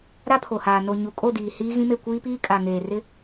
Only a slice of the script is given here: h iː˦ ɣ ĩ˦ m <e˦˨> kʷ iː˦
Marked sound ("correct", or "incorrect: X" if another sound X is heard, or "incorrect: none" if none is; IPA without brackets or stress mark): correct